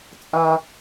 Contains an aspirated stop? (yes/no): no